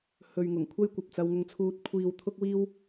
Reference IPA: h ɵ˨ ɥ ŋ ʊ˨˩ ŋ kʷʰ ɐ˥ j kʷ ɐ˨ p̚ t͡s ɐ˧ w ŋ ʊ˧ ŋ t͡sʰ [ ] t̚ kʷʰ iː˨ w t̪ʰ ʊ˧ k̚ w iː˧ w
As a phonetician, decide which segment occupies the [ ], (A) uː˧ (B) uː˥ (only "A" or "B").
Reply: A